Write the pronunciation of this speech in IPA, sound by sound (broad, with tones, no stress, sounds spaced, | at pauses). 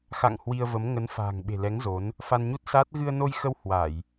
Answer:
x a̰˧˨ ŋ h w i˧ ə̯ v ə˨˦ m ŋ ə˨˦ n f a̤ː˨˩ ŋ ɓ e̤˨˩ l ɛ˨˦ ŋ z o˨˦ n | f a˧ n ɲ u˦˥ t̚ s aː˦˥ t̚ ɣ ɨ˧ ə̯ n o˧ j x ə˧ w h w a˧˩˨ j